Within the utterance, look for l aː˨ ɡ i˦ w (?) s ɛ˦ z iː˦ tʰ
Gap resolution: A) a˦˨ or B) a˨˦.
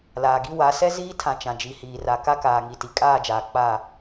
B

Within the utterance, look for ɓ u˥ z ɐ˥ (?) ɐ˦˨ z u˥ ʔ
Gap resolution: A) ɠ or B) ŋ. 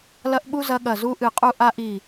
A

